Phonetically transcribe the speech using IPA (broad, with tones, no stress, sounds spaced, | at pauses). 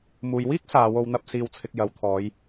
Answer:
m uː˨ j w iː˥ k̚ s aː˨˧ w o˧ w n̪ ɐ˧ p̚ s iː˨ w t͡sʰ ɪ˨ k̚ j ɐ˨ w t̪ʰ ɔː˨˧ j